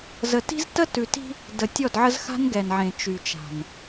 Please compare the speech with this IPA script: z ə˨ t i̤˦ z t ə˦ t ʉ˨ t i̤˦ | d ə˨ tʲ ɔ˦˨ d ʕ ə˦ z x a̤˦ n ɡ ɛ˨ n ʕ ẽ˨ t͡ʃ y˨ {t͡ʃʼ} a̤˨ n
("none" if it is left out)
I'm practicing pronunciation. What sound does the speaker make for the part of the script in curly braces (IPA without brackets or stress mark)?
t͡ʃ